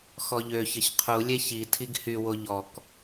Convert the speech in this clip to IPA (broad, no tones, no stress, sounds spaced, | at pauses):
x ɔ ʎ ø ç ə ç qʰ u lʲ ɛ ç i tʰ i ɡ h y w o ʎ ɔ k